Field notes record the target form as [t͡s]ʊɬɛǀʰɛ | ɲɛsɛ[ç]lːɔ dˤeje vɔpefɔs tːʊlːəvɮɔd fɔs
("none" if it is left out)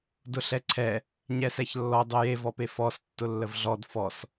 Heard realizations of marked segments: d, ç

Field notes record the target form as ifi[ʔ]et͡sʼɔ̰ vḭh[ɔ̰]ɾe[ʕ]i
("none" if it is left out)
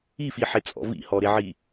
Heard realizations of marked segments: ħ, ɔ, ʕ

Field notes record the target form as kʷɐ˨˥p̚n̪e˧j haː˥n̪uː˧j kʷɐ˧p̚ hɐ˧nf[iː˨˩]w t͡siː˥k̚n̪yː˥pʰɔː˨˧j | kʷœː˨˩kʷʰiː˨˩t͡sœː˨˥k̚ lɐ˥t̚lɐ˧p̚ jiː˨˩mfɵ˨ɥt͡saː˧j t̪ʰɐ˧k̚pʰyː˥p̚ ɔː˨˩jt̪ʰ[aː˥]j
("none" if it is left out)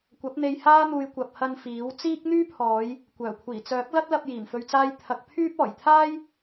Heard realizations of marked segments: iː˨˥, aː˥

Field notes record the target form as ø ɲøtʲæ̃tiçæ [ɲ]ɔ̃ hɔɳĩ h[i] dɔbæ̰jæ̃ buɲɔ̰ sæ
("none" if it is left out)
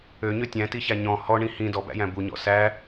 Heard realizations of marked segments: ɲ, ĩ

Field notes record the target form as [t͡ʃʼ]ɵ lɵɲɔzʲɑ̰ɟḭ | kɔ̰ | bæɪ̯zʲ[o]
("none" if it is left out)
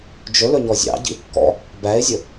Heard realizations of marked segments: d͡ʒ, ɵ

